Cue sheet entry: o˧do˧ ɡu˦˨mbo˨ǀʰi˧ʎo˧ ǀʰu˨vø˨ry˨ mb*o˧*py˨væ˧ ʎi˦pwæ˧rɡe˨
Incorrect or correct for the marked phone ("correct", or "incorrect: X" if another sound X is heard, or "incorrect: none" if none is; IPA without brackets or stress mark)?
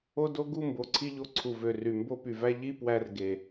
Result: correct